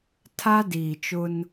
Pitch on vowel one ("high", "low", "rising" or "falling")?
high